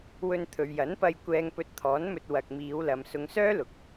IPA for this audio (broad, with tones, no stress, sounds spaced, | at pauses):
w ɵ˧ n t̪ʰ ɵ˨ ɥ j ɐ˨˥ n p ɐ˧ j kʷ ɛː˧ ŋ p ɵ˧ t̚ t̪ʰ ɔː˨˥ n m ɵ˧ t̚ w ɐ˨ k̚ m iː˨˧ w l ɐ˨ m s ʊ˨˧ ŋ s œː˥ l ʊ˨˥ k̚